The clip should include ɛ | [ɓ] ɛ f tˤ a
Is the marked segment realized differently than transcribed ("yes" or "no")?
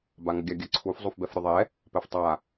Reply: yes